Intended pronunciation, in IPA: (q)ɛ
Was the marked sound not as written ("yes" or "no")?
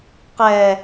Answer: no